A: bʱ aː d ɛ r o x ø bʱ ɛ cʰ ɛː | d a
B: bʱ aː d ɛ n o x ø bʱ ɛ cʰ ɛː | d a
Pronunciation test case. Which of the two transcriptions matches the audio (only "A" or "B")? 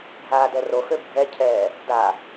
A